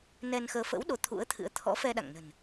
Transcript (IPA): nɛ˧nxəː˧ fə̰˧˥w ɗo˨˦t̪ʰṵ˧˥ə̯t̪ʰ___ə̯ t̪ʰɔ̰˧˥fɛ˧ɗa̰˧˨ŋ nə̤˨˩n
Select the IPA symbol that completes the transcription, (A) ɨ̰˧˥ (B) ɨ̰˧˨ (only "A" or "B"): A